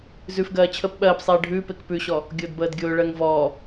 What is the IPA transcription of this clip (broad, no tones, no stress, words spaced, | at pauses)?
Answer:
zʉfɡɜː t͡ɕʰəp ɓɜːpsˤeː ɖʱʉːpek pʉɕɔ | ɡʲʊːdbəːdɡʲʊːɭɜŋ vɔː